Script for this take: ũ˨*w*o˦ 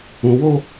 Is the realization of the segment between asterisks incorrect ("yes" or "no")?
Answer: no